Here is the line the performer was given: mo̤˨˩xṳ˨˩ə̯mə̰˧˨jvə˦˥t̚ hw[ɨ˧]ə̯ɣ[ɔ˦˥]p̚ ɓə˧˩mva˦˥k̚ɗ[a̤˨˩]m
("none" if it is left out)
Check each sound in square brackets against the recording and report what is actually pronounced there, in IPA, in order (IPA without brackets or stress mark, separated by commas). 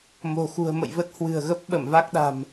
ɨ̤˨˩, ə˦˥, a̤˨˩